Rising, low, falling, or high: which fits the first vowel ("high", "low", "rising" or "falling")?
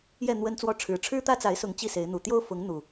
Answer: falling